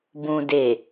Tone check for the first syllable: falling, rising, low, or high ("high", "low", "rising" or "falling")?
low